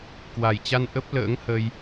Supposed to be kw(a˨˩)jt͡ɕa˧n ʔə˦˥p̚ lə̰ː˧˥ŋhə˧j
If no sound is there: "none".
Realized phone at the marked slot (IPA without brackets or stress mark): a˨˩